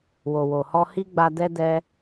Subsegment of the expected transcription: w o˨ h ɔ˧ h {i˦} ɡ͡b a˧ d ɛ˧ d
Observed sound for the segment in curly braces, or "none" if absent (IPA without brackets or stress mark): i˦